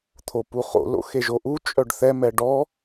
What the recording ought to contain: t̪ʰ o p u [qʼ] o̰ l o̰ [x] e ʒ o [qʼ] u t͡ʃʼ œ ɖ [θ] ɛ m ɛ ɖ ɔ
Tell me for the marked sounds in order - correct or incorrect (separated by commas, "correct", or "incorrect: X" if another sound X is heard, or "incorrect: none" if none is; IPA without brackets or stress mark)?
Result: incorrect: χ, correct, incorrect: ʔ, correct